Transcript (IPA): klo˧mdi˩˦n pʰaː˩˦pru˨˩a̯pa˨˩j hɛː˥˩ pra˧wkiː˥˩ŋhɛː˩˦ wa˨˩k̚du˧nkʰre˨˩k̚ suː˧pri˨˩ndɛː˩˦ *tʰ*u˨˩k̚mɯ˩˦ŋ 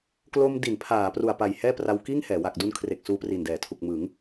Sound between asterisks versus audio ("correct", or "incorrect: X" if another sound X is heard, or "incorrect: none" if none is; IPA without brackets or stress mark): correct